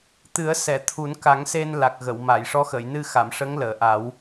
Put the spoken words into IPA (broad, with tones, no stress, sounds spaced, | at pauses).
t̪ ɨ˨˩˦ ə̯ s ɛ˨˩˨ t̪ʰ u˨˩˦ n k a˨˩˦ ŋ s e˧ n l a˨˩ k̚ ɣ ə˨˩˨ w m a˨˩˨ j ʂ ɔ˧˥ x ə˨˩˨ j n ɨ˧ x a˨˩˨ m ʂ ə˧˥ ŋ l əː˨˩˨ ʔ a˨˩˦ w